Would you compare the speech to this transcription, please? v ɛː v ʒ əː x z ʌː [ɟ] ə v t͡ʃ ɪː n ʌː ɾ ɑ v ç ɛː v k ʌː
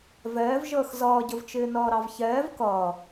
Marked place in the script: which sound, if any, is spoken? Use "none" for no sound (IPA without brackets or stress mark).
ɟ